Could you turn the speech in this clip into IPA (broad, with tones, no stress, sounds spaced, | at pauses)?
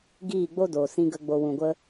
ɡ iː˦˨ ɡ͡b o˦ d oː˨ s ĩ˧ ɡ ə˧ ɡ͡b o˧ w ũ˨ ɡʷ ə˧